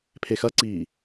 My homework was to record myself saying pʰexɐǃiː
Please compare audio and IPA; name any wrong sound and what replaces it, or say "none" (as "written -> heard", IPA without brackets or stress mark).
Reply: ǃ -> ǀ